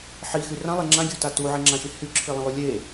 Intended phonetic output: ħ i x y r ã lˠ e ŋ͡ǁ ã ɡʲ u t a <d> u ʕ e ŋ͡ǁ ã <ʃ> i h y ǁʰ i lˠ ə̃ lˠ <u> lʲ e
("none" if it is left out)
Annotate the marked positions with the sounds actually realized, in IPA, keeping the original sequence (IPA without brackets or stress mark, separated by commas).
t, ʃ, u